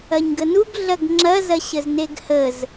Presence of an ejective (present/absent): absent